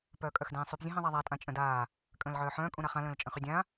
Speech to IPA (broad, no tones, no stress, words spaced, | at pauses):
pœːkʼœxdẽːsˤyp zʲə̃ɦẽðˤaðˤa tʼãt͡ʃʼə̃daː | kʼə̃ːlʕœːħœ̃ː kʼũɾaχã lə̃ːlt͡ʃʼə̃χydʲã